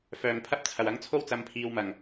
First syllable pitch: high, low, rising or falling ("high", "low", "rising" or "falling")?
low